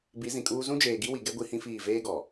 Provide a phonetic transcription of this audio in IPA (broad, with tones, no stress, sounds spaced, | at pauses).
b i˨˦ z ĩ˨ kʼ uː˦ z ũ˦ d͡ʒ eː˨ ɡ i˦ w i˨ ɡ ɛ˦ ɡʷ i˦ h ĩ˦ f iː˦˨ v eː˦ ɡ ɔ˨